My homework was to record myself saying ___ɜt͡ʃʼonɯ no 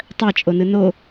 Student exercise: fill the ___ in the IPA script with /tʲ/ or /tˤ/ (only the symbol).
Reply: tˤ